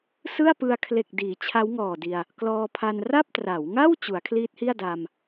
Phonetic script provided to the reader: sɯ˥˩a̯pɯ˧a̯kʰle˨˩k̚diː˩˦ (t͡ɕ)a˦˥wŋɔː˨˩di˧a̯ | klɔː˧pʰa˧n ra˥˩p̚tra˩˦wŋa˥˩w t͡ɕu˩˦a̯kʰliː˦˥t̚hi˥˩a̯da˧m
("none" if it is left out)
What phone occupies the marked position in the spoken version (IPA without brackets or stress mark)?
t͡ɕʰ